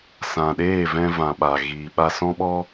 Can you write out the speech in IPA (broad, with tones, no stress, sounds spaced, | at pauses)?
s ã˨ ɗ eː˦˨ v ɛ̃˧ v ã˨ ɓ a˨ ɣ iː˨ ɓ a˧ s ɔ̃˦ ɓ ɔ˦